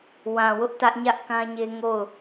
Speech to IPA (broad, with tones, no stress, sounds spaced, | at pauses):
w ã˨ w ʊ˦ ʔ t ä˦ ʔ ɲ ä˦ ʔ k ã˦ ɲ e˦ ŋ o˦˨ ʊ̯